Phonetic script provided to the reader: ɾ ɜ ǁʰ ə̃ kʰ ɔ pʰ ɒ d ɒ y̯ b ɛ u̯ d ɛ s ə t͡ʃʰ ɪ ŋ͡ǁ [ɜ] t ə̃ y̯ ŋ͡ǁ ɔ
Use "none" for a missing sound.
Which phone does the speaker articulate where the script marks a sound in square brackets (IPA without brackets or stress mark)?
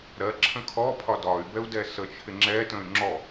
ɛ